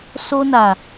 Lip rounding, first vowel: rounded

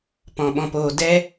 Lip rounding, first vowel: rounded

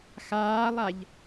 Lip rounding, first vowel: unrounded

